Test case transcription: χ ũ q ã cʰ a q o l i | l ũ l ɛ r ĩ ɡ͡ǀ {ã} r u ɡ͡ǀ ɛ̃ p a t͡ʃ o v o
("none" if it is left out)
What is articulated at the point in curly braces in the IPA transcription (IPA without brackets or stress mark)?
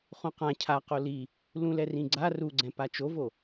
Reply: a